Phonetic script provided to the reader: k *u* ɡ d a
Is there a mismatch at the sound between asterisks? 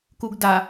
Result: no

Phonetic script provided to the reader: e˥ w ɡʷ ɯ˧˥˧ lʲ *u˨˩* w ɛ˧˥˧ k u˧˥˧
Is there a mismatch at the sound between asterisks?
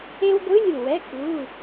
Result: no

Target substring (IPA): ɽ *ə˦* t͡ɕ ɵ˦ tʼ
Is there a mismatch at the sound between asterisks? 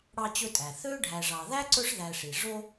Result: yes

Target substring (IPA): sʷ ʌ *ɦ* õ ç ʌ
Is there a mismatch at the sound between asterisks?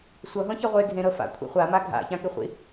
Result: no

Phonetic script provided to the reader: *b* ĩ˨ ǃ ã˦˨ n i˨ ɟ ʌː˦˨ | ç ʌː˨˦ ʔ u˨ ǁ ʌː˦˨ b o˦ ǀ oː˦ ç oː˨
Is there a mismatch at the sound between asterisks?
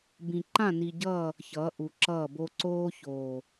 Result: no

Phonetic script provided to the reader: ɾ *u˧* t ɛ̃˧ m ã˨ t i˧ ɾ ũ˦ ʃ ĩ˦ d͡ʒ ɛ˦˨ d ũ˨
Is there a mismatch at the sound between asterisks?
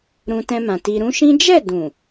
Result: yes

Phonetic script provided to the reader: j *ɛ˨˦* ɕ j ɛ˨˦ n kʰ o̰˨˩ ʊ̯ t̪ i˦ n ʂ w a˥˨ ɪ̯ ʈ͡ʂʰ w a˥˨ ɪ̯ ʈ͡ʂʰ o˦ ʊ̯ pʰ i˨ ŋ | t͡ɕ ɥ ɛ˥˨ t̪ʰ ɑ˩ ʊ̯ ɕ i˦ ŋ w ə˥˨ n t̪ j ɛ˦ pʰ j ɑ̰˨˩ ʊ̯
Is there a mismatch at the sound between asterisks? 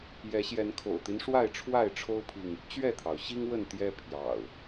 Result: no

